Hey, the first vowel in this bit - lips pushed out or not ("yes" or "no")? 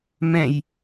no